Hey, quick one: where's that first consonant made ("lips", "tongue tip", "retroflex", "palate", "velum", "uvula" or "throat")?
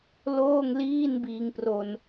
tongue tip